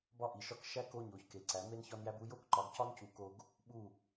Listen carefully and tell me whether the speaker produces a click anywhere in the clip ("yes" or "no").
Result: yes